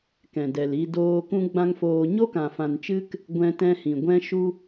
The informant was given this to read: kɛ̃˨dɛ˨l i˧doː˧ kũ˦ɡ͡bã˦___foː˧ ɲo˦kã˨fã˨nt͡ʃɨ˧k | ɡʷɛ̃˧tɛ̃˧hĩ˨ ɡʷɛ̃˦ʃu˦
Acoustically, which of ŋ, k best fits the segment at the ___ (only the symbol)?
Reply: ŋ